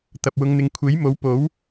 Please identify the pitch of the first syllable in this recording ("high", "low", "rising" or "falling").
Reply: low